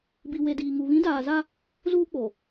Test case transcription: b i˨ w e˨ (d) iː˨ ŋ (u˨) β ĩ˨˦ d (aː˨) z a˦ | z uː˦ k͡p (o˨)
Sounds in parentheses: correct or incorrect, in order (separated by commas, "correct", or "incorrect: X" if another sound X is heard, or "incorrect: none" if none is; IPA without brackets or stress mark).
correct, correct, correct, correct